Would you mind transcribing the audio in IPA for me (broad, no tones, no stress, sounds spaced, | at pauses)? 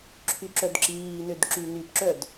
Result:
ǁʰ y ǁ œ d ǁ iː n ø d ǁ y n y p ǁ œ d